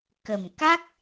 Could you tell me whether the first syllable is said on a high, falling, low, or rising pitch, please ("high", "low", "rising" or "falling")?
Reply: low